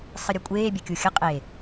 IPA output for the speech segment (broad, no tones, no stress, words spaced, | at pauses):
sˤɨɾʲɐkʷʼeːbʲɐ kʲuxʲɐ qʼe